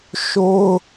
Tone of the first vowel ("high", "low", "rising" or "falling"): high